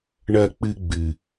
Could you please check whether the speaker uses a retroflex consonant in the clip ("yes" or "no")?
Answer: yes